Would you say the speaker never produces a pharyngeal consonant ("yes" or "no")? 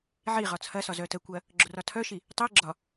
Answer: no